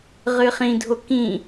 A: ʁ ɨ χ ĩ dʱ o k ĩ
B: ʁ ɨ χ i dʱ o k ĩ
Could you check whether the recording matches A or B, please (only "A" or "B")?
A